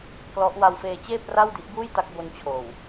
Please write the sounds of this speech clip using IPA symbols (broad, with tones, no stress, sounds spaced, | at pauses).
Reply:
k l ɔ˦˥ ʔ w a˧ w f eː˧ t͡ɕ eː˥˩ p̚ r a˥˩ w d i˦˥ ʔ b uː˥˩ j t a˦˥ k̚ b o˧ n t͡ɕʰ oː˨˩ w